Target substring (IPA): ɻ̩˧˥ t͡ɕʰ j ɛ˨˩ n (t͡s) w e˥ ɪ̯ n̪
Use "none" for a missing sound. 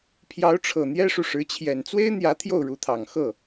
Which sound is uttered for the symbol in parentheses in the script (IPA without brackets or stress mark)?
t͡s